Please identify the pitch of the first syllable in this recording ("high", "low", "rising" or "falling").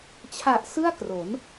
low